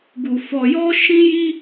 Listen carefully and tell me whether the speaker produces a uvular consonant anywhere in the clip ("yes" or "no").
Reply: no